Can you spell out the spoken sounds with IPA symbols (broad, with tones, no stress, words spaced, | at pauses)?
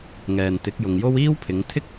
ŋɛː˨nt̪ɪ˨˥k̚jʊ˨ŋjo˥w iː˥wpʰɪ˨˧ŋ t̪ʰɪ˥k̚